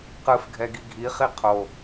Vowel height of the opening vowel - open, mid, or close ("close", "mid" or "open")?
close